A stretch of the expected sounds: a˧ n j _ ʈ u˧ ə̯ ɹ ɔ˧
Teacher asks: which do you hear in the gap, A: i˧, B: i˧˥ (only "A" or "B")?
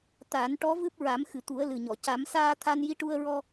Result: B